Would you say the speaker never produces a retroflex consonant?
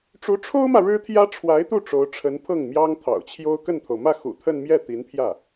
no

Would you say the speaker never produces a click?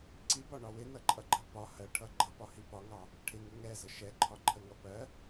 no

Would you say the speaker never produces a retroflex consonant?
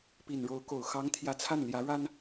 no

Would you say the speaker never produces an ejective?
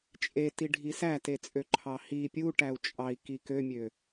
no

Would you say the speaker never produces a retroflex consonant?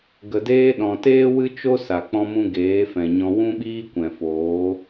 yes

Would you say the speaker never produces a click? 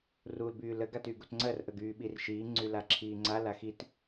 no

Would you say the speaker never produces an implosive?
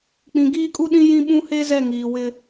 no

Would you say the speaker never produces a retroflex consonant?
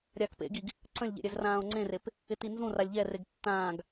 yes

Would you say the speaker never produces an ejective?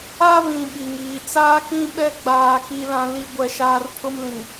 yes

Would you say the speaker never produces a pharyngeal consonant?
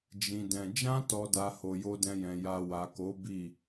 yes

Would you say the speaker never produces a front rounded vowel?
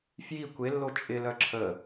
no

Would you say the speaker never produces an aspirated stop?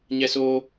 yes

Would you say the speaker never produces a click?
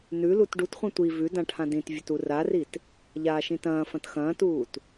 yes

